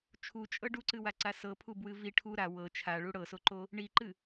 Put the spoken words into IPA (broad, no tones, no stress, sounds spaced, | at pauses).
t͡ʃʰ u t͡ʃʼ ɤ ɖ u ǀ ɨ w a ǀ a s ɤ pʰ u b w ɨ v i ʈʰ u ɾ a w ɤ t͡ʃʰ a ɭ u ɽ ɤ s o ǃ o | ɳ i ǃ ɨ